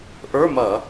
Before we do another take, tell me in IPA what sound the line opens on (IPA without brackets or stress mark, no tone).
ʔ